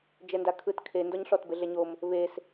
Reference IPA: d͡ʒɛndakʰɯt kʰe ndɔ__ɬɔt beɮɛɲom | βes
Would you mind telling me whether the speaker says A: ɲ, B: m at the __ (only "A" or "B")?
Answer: A